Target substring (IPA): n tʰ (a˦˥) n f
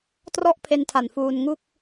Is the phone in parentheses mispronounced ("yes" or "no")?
yes